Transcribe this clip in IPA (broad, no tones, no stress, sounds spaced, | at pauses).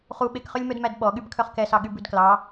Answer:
χ u ɓ e k χ ø lʲ m œ d m æ d ɓ ɔ ɠ y b kʰ œ χ k ɛ s ɑ ɠ y b ʉ d k l ɑ